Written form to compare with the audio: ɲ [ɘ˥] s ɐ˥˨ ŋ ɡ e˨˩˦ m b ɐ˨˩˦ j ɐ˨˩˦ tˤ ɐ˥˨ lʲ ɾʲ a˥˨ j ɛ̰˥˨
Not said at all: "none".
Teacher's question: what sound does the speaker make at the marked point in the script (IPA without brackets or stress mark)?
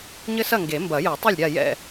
ɘ˥